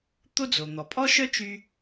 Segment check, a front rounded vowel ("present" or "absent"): present